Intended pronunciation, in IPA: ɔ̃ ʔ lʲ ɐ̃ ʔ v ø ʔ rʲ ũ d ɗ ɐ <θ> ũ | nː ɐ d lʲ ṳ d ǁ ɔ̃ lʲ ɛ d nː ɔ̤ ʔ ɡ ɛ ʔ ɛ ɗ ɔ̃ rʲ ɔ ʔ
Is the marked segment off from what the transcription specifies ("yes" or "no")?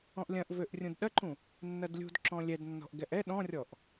yes